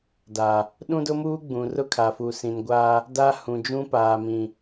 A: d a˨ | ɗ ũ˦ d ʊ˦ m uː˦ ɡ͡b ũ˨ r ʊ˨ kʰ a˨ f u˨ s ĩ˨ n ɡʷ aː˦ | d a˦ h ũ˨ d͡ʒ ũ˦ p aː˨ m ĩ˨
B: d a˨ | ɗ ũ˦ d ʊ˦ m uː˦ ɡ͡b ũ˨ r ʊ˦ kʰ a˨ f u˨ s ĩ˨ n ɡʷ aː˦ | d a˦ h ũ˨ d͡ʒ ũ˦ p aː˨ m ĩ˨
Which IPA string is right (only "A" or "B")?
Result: B